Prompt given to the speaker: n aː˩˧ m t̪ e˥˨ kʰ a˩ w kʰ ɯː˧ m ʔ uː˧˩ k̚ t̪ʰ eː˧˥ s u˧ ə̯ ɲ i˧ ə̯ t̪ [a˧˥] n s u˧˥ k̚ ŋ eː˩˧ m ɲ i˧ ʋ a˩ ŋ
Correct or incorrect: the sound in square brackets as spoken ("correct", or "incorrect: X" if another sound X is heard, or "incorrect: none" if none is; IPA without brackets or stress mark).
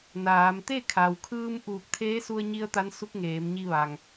correct